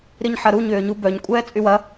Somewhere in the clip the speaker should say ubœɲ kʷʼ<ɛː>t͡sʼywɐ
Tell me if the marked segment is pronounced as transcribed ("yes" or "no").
yes